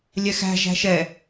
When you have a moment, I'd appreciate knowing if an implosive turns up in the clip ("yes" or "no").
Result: no